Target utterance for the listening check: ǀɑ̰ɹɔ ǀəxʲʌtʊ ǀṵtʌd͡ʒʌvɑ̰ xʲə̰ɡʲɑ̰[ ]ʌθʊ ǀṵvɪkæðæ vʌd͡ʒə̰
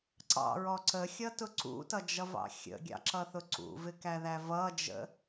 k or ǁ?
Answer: ǁ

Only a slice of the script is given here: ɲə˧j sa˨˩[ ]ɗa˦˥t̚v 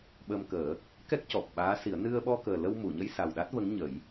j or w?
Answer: w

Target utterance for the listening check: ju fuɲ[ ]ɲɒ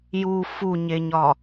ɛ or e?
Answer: e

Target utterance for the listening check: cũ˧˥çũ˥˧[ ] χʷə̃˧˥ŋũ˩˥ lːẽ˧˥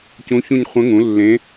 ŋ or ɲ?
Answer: ɲ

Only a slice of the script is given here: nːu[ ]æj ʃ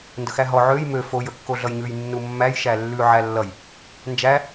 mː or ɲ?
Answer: mː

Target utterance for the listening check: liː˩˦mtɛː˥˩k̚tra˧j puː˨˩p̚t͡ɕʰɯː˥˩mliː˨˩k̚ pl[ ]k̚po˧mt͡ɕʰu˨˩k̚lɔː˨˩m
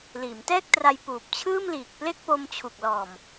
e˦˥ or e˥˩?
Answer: e˥˩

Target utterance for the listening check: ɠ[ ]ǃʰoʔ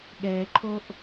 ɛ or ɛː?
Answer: ɛː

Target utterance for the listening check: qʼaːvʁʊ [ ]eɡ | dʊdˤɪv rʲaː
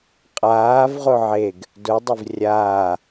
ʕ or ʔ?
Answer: ʕ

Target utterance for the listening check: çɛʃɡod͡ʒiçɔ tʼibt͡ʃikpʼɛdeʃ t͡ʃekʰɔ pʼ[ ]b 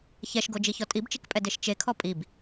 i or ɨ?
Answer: i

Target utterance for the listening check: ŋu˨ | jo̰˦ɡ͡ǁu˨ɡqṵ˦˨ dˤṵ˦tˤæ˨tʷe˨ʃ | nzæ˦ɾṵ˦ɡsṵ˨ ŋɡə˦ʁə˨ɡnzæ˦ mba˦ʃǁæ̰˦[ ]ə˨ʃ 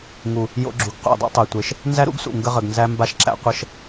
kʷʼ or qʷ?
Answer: qʷ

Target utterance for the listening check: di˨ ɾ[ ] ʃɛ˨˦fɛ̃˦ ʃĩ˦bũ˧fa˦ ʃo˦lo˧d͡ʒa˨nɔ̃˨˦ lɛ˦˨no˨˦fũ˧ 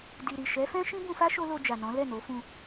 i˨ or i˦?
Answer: i˨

